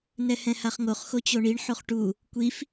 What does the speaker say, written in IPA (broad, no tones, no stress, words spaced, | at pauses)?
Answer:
nɛhɛ̃haχŋoχ xot͡ɕoɳiɳ ħoχʈu | kʷif